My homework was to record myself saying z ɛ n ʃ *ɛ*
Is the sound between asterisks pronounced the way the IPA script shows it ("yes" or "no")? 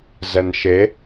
no